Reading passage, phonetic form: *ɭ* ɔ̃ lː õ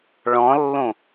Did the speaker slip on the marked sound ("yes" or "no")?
no